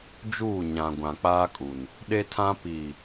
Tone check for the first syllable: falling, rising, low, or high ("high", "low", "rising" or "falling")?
falling